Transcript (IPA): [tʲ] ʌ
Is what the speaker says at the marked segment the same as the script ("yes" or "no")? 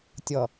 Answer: yes